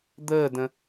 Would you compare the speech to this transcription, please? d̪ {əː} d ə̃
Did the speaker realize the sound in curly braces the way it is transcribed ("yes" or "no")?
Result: yes